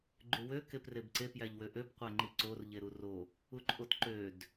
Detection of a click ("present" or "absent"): present